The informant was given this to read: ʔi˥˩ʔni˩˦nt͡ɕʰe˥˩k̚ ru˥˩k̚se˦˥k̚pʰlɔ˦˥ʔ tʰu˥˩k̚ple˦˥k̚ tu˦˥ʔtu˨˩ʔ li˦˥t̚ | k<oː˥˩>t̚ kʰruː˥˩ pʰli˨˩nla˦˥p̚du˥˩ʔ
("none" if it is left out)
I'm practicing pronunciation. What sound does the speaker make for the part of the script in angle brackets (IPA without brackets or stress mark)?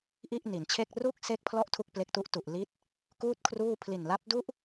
uː˥˩